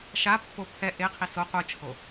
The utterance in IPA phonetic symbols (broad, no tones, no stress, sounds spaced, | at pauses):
ʃ a pː o pʰ ɛ ʔ e qʰ i s o qʷ ɯ t͡ʃʰ o